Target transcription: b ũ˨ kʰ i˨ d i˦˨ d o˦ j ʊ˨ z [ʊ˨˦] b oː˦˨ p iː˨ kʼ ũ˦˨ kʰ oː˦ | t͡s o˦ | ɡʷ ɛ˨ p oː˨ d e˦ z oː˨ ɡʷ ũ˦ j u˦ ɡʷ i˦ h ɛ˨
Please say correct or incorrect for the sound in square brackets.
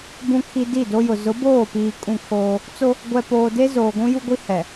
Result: correct